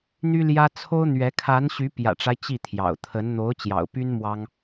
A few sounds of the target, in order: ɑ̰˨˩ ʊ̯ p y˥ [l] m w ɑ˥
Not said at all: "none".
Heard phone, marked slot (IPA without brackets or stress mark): n